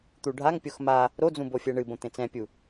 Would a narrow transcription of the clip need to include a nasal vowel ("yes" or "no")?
yes